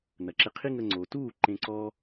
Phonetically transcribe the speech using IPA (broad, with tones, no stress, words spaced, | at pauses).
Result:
nɐ˨ǁe˧ qʰi˦ŋə˧ŋ͡ǀoː˨ tuː˦˨ ǃẽ˧ǀɔ˦